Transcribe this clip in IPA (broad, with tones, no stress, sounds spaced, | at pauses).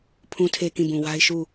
pʰ ũ˨ tʰ e˨ k ĩ˦˨ b ũ˨ w a˦ ɪ̯ ʃ u˦˨